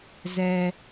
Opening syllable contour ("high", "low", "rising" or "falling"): low